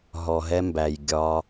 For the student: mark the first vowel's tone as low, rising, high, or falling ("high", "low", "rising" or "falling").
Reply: low